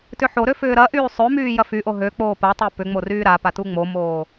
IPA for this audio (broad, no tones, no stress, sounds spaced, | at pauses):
t ʏ ħ o ɾ ø f ʏː ɾ ɐ ʔ yː sˤ ø m yː j ɐ f y ʔ o ɦ ø k͡p oː p ɐ tˤ e p ʏ ŋ͡m o r yː ɾ a p a t u ŋ͡m o m oː